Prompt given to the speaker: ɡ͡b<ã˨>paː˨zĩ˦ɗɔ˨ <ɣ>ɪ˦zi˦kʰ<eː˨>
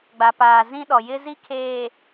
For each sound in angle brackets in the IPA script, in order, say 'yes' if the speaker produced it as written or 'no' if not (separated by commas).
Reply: no, no, yes